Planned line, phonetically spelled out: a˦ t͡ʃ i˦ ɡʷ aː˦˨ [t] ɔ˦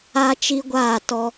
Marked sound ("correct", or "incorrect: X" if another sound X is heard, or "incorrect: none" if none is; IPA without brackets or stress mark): correct